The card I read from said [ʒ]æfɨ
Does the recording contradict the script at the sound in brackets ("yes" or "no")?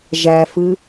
no